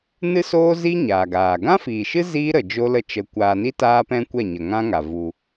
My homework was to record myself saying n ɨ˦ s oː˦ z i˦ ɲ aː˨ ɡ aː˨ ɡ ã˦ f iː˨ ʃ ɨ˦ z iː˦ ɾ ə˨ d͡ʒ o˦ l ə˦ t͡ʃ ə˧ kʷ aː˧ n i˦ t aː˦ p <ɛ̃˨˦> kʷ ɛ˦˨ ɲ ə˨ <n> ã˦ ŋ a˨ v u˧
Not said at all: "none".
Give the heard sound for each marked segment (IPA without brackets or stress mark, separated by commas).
ɛ̃˦, ŋ